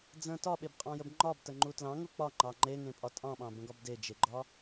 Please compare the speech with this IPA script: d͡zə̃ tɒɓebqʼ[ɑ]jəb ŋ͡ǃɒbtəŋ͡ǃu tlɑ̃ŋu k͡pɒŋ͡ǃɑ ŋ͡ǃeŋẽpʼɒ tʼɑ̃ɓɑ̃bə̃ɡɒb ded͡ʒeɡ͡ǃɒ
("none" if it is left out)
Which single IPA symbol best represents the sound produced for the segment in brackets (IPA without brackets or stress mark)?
ɑ̃